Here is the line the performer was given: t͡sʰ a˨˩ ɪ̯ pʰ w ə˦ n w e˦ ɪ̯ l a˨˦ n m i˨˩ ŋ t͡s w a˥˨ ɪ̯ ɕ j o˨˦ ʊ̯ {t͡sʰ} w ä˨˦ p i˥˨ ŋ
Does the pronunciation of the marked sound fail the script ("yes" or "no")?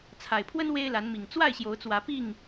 yes